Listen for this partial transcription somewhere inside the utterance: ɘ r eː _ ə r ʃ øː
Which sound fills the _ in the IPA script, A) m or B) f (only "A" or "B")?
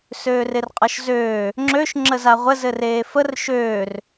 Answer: B